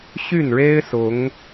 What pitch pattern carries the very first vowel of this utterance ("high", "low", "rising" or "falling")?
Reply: falling